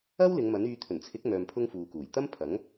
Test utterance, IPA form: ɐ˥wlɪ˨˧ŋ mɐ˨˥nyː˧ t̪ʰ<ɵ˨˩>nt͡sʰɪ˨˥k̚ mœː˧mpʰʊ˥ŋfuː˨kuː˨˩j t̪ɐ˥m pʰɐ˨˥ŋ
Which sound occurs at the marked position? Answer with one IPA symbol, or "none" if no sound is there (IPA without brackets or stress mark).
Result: ɵ˨˩